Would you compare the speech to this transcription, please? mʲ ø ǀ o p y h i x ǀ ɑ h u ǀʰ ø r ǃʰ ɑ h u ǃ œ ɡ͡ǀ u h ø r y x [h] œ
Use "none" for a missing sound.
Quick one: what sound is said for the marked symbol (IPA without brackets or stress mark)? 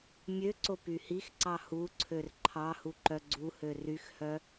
h